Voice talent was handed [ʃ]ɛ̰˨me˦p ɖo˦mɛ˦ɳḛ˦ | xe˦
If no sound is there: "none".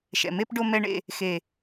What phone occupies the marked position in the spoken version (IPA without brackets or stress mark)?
ʃ